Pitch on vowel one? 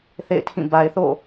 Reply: falling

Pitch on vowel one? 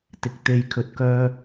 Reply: rising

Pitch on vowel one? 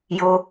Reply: high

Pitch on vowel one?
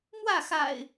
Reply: falling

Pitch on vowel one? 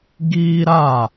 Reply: high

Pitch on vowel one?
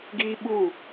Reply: high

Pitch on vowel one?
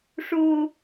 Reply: high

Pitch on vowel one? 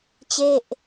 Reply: falling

